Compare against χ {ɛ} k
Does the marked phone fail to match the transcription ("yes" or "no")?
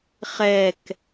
no